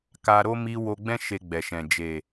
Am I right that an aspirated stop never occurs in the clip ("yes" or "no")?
yes